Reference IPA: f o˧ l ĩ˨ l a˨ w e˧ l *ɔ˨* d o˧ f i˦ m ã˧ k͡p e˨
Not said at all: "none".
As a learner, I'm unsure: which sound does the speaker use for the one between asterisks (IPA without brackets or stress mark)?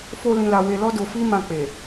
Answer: ɔ˦